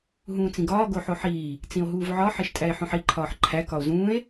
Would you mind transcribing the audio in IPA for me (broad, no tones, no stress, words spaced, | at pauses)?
ɦũːt͡sĩɡɒː ɡoħoħiː | t͡sĩo̯ɦuːvʕɒ ħeʃtʼæe̯ħõħi ǃʰɒːħǃʰæ kɒo̯zũːe̯